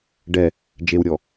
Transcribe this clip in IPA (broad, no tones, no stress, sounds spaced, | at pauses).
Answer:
ɖ ɛ | d͡ʒ e w ɾʲ ɔ